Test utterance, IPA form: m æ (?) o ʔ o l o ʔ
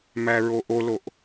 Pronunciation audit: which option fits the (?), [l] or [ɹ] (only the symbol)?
ɹ